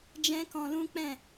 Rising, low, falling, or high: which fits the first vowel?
high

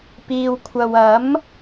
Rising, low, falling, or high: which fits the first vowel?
low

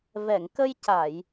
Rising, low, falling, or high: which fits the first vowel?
low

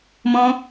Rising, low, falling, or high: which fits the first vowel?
high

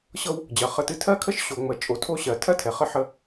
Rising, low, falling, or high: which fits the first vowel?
high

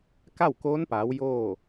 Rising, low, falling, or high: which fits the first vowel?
falling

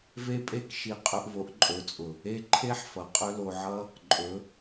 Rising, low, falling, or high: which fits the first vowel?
high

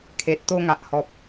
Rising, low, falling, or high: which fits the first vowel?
low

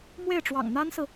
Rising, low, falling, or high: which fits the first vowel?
falling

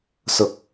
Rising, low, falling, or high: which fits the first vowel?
low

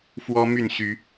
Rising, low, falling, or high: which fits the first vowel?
high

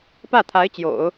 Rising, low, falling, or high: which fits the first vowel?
falling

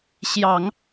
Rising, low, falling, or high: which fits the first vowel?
low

